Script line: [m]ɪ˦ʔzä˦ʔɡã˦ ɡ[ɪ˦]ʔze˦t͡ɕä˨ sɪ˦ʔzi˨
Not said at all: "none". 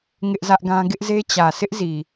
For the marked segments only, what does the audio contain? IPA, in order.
ŋ, ɪ˦

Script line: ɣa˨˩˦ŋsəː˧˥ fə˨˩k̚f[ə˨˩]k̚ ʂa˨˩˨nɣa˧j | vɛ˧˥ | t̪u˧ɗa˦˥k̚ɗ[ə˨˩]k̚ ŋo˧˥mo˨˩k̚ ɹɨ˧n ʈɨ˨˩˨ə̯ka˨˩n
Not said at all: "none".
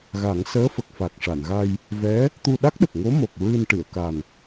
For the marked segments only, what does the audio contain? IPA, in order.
a˨˩, ə˨˩

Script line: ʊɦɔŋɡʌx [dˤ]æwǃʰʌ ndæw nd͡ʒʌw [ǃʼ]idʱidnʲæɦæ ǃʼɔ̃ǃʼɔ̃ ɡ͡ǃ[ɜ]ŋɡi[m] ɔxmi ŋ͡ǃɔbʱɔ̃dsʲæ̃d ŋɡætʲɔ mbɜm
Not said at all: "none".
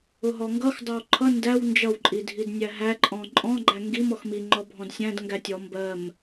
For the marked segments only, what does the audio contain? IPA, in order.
dˤ, ǃʼ, æ, m

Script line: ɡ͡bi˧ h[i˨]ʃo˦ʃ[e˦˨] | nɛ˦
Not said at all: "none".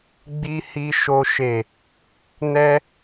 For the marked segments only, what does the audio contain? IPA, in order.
i˦, e˦˨

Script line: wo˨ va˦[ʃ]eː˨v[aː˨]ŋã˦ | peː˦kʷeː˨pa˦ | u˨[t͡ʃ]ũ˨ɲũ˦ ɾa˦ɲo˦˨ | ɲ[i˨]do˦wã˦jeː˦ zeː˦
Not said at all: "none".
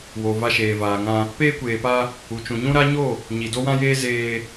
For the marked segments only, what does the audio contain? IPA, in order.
ʃ, aː˨, t͡ʃ, i˨

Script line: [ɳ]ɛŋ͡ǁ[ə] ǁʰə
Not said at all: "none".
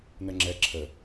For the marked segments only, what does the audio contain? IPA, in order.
n, ɛ

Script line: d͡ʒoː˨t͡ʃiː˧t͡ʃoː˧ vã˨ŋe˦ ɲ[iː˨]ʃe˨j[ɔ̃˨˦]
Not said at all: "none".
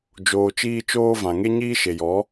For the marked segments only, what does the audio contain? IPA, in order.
iː˦, ɔ˨˦

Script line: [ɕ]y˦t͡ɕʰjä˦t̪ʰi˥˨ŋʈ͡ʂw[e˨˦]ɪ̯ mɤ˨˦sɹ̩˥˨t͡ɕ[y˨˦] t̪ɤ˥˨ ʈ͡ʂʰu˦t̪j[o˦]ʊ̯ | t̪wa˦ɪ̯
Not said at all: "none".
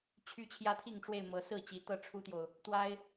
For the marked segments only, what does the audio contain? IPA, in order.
t͡ɕʰ, e˥˨, i˨˦, o˨

